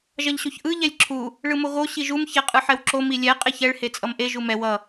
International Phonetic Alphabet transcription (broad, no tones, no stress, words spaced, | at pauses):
ʒʌʎɕoçʔɯ ʎɛlʲǁʰu | ɭɯmoɣo ɕiʒum çɛqʼɯħɛwǁo milʲɛ qʼeçɛɭ het͡sʼʌmʔe ʒumɛ wʌ